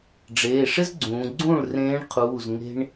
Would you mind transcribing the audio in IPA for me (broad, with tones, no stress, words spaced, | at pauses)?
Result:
ɖ͡ʐeː˩˧˩ʂɪ˥zɡ͡ǀũː˩˧ɡ͡ǀũː˥˩ɭ rẽː˧˥ɳqʰuː˩˧˩z ŋe̤˥ɳ